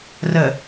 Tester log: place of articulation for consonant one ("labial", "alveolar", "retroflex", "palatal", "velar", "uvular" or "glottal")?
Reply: alveolar